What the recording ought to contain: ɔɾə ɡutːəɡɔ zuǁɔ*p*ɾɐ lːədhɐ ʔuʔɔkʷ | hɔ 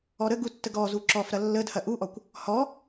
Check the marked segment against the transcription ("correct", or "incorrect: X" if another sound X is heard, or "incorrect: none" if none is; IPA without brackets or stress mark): incorrect: f